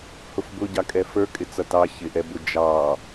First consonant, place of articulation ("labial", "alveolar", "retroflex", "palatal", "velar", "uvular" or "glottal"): glottal